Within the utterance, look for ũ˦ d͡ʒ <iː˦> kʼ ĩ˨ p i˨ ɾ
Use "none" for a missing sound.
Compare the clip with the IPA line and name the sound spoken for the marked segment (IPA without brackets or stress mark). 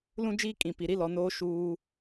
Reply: iː˦